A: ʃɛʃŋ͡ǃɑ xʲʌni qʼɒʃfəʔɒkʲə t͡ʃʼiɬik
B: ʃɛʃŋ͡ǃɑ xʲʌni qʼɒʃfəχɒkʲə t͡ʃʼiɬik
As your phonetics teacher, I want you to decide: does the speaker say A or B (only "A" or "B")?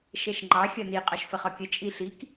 B